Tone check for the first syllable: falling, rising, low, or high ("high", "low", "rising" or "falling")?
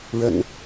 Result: low